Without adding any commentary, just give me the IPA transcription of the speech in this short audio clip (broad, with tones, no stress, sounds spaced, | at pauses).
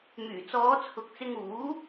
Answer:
m yː˨˩ t͡s ɔː˨˧ t͡sʰ ʊ˨ k̚ t͡s ɪ˧ ŋ uː˨˥